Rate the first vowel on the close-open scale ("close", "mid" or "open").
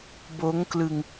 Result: mid